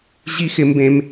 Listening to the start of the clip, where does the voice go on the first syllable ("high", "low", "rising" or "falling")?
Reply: high